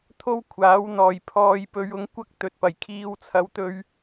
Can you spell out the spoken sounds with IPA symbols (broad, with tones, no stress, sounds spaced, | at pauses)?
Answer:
t̪ʰ o˥ w kʷʰ aː˨˥ w n̪ ɔː˨˩ j pʰ ɔː˨˧ j p ɵ˨˧ ɥ ʊ˧ ŋ kʷ ɐ˥ k̚ t̪ ɵ˨ t̚ p ɐ˨˩ j kʰ iː˧ w t͡sʰ ɐ˨˧ w t̪ ɵ˧ ɥ